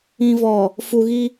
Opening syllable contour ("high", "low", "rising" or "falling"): low